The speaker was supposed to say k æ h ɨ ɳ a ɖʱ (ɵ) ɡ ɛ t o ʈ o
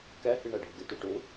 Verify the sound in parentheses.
incorrect: ʊ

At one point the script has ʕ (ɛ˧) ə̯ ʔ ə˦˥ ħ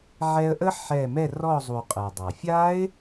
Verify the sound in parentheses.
correct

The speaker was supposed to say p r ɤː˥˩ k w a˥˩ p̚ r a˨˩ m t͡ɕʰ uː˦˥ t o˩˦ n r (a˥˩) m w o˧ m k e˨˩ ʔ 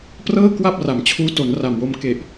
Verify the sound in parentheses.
incorrect: a˨˩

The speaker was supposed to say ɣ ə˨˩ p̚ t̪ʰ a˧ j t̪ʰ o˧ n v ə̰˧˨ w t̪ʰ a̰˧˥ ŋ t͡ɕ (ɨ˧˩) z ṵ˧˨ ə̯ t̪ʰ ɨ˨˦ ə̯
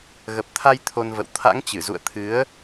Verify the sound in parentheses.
correct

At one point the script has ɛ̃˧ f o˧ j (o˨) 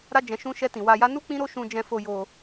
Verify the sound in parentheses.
incorrect: o˧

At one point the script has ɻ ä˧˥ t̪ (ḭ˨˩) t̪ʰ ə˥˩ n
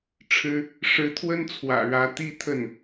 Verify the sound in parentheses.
incorrect: i˥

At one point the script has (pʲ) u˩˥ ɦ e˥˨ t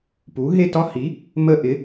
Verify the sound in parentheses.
incorrect: p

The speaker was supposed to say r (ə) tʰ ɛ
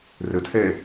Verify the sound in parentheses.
correct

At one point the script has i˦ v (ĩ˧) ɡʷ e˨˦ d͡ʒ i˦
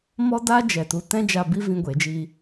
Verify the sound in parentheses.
correct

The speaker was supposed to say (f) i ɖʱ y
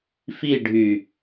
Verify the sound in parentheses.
correct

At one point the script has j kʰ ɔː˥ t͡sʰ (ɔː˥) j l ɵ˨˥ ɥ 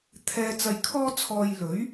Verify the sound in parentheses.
incorrect: ɔː˧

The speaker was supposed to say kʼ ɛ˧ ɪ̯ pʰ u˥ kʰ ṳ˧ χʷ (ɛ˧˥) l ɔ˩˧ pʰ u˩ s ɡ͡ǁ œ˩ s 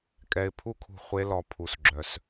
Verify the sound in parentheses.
incorrect: e˧˥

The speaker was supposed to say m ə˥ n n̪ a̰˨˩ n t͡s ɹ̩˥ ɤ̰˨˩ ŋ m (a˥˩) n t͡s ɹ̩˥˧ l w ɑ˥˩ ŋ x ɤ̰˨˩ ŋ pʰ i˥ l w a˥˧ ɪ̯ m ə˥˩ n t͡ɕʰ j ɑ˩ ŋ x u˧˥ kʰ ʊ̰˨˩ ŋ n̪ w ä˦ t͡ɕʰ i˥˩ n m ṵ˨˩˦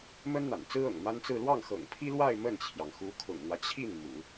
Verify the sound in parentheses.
incorrect: a˥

